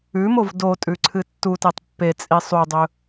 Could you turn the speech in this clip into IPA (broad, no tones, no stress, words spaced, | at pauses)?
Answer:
ʉmov dotʼʉ ǀʰɨtːutetˤ pːet͡sʼi sˤudˤɵ